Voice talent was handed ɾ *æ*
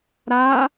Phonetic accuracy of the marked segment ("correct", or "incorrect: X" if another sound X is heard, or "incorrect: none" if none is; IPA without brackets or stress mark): incorrect: a